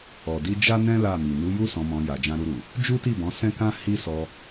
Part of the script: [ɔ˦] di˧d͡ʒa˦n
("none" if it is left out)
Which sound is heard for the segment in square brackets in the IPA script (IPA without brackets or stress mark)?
ɔ˨